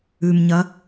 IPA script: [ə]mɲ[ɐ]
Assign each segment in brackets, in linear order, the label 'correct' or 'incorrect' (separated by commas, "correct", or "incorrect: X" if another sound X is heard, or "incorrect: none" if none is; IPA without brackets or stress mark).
incorrect: ʉ, correct